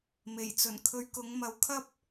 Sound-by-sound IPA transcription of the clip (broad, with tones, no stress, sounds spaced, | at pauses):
m e˨˩ j t͡s ɵ˨˩ n kʰ ɵ˧ ɥ k ʊ˨˥ ŋ m ɐ˨˥ w kʰ ɐ˥ p̚